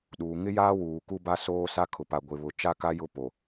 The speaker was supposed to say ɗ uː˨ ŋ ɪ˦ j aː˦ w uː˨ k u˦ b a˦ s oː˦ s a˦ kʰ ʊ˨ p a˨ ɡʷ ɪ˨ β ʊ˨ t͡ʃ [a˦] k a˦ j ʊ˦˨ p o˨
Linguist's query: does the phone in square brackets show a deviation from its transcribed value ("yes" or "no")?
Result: no